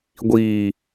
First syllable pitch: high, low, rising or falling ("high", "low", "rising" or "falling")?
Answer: low